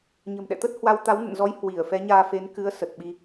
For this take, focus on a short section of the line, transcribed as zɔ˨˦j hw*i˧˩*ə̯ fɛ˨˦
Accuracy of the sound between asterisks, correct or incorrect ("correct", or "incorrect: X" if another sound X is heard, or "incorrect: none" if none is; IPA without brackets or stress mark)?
correct